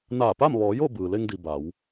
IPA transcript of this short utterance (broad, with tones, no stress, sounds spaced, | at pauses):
n aː˧˩ p a˥˨ m ʋ ɔː˩˧ j o˥˨ b ɯː˩ l e˧ ŋ d i˩ b a˩˧ w